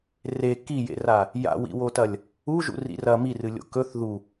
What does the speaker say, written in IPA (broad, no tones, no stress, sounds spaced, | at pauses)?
r e k i j ḛ r a | j a̰ w ḭ w o t ɐ lʲ | u ʒ ṵ r ḭ r ɐ m i r ɨ lʲ o̰ k ɵ θ ð u